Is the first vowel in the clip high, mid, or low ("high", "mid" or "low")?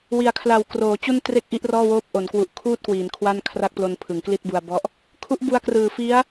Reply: high